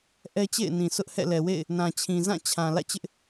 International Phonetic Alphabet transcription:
ʔɛ˦t͡ɕḛ˦˨ɪ̯nĩ˨sʰʊ˦ʔ hɛ̰˦˨lɛ˨ wḛ˦˨ɪ̯ | nã˨t͡ɕʰĩ˨ zã˦˨ t͡ɕʰã˨ lä̰˦˨t͡ɕɪ˦ʔ

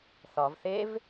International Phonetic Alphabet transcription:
θɒv θev

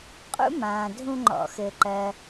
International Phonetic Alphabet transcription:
qʼṵ˥mãː˩ dʱũ˨ŋ͡ǃɔ̰˩ xɘː˩ǃɜ˩

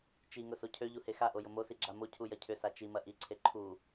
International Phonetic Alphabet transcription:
t͡ʃiŋʊ socʰøʎu hexaʔo jʊmosi ɡ͡ǁamocʰu jɐcʰʏsa t͡ʃimɐ ʔiǀʰe ǃʰu

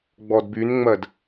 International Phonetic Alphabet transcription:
ɡ͡bɔdbynŋ͡mɜd

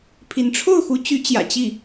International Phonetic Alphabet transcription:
pʰi˧˥n ʈ͡ʂʰo˥˩ʊ̯xu˧˥ t͡ɕy˧˥t͡ɕjä̰˨˩ t͡ɕi˥˩

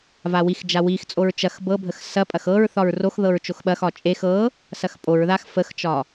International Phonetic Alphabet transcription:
vawixd͡ʒa wixt͡sʼoɹ t͡ʃɐx bɤbʱəx sɐpʼɐx ɤɹ θɒɹroxðɤɹ t͡ʃoxɓɐxɒ t͡ʃʼex ɤ | sɐxpʼoɹðax fəxt͡ʃɒ

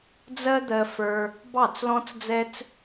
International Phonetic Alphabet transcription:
d͡zɜ˦d̪ɜ˧fə˞˧ | bɑ˦˨t͡slɔ̃˦t͡sd͡zɛ˦t͡s

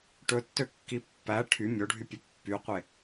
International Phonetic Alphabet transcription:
ʈɵtːøkːi pːæ ʈʰy mʲoɖʱypʲɵ pːyqʷe

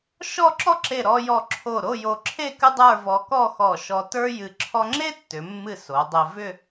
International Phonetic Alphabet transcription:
ʃɔ˥˧ǁɔ˥ǁe˧˩ ɾɔ˧jɔ˧˩ ǁʰo˧˩ɾo˥˧ jo˧ǁʰe˥˧ kɨ˥dˤə˞˥˧ vɔ˧kɔ˥˧ xɔ˧˩ʃɔ˧ tə˞˥jɨ˧ ǁʰɔ˥ ŋ͡ǁe˥ tːʏ˩˧mːɨ˧˩ so˩˧dˤe˧ vʏ˥˧

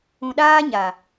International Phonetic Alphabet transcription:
ũ˨ɗaː˦ɲa˨

